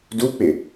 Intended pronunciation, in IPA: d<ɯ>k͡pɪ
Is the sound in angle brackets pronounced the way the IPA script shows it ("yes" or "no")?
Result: no